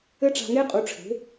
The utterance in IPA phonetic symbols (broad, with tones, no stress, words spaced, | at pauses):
ɘ˦ʈ͡ʂa̤˧ŋe˦qʼu˨˦ ʈ͡ʂʰe̤˨˦